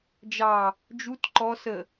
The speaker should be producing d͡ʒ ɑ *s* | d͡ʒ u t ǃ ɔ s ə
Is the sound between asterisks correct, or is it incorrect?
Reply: incorrect